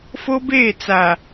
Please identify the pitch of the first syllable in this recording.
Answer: high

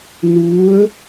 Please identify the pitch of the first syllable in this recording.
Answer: rising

